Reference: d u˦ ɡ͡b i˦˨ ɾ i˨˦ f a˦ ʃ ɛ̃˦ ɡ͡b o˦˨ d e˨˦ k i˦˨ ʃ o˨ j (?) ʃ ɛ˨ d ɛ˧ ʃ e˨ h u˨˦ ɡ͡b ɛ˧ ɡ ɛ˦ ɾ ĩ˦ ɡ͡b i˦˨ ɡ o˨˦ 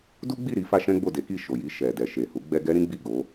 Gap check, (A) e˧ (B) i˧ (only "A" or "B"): B